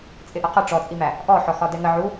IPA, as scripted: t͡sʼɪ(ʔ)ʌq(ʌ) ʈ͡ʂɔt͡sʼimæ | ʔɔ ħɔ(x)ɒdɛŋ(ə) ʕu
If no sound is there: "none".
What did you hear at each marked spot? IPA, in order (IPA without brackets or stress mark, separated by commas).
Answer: ʔ, ʌ, x, ə